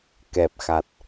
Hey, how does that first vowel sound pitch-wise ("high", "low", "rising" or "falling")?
low